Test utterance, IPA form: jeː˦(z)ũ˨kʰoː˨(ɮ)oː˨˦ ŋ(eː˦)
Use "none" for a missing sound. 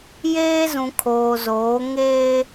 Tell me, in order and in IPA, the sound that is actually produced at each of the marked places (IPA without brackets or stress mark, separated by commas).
z, z, eː˦